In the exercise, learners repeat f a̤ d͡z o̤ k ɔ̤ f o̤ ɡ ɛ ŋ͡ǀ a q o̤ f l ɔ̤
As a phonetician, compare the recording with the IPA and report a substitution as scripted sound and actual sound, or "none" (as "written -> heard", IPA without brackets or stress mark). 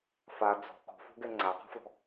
a̤ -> a